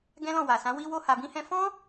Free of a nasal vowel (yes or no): no